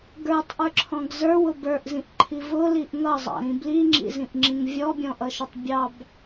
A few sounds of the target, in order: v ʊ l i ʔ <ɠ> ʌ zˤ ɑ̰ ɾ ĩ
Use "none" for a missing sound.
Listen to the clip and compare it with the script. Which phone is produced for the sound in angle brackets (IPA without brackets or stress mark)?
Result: ŋ